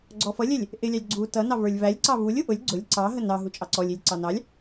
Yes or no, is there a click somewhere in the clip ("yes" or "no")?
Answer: yes